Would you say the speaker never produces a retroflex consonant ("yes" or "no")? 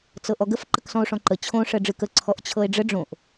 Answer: no